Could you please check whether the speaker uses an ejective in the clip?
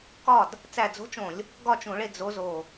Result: no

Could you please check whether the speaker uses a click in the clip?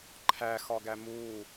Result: yes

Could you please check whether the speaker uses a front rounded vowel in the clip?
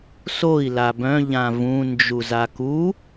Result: yes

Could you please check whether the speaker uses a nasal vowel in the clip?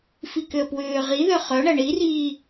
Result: no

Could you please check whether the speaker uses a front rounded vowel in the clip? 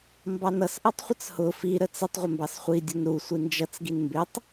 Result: no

